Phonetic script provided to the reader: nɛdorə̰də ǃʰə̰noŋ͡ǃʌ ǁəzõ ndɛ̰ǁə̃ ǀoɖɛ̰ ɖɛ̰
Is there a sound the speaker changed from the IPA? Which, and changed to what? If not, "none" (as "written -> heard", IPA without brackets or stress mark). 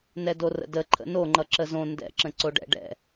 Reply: none